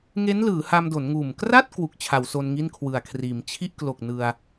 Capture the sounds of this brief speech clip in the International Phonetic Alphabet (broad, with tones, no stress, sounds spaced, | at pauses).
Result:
ŋ e˦˥ n l ɯː˩˦ h a˧ m d o˩˦ n ŋ uː˨˩ m k r a˥˩ t̚ k w u˨˩ k̚ t͡ɕʰ a˩˦ w s o˧ n ŋ i˥˩ n kʰ w ɯ˨˩ a̯ kʰ r iː˩˦ m t͡ɕʰ i˥˩ ʔ k l o˨˩ k̚ n ɯ˧ a̯